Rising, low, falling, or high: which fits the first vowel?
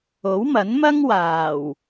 rising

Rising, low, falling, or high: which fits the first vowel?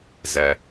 low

